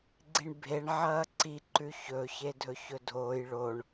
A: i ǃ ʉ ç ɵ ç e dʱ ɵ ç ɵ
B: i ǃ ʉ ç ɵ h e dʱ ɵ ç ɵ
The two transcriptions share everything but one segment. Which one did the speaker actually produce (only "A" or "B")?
A